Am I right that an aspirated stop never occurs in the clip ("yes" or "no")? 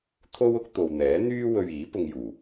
no